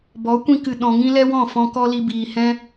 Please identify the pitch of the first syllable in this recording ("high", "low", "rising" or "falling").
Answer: rising